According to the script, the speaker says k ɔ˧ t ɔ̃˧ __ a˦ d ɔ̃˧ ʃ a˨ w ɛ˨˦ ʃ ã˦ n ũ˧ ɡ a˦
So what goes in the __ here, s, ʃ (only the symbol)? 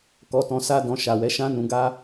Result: s